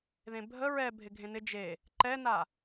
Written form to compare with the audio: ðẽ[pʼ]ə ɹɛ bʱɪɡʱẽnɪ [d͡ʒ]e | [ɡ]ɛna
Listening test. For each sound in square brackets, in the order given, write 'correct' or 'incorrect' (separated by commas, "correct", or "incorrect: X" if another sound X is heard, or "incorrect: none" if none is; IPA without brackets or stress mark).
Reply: incorrect: bʱ, correct, incorrect: ǃ